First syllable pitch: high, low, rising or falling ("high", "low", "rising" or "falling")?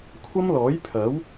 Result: high